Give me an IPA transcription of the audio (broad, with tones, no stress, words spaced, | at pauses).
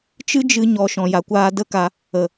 t͡ʃɨ˦d͡ʒɨ˧ ɲɔ˧ ʃɔ̃˨ja˨kʷaː˧ də˦ka˧ | ə˨